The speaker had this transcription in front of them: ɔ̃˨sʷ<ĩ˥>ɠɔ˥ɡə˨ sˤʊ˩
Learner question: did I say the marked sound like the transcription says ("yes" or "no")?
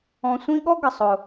no